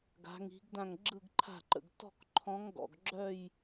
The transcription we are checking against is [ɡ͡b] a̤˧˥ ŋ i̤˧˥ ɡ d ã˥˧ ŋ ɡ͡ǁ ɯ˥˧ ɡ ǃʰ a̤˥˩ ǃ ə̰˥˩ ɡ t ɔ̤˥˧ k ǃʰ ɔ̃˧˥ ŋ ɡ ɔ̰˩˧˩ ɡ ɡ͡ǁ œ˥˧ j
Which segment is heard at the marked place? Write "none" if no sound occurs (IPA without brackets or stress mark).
ɡ